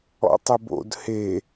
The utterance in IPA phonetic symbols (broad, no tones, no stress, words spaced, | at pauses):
ɔ̰tˤɪbo̰d he